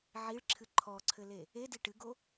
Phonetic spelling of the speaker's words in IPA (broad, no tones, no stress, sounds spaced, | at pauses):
ʕ i ɭ ǁʰ ɨ ǃʰ ɔ ǀʰ ɘ l e | e d i ʈ ɨ ɡ o